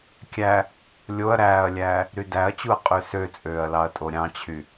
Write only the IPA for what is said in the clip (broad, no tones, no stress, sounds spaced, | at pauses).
kʲ æ | lʲ o ɐ̯ ɾ æː ɐ̯ lʲ æː | ɾ y d æ ɐ̯ t͡ɕ u ɐ̯ qʼ ø s ø t͡sʼ øː ɐ̯ l ɑ ɐ̯ tʼ o ɾʲ ɑ̃ t͡ɕʰ y